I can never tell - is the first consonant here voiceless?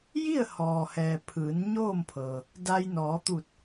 no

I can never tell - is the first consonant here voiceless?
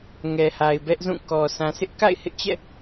no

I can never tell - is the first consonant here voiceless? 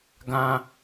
no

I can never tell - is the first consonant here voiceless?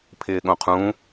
yes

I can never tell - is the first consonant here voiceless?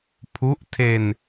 yes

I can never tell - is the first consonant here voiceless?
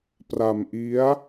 yes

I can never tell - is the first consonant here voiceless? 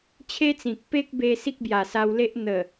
yes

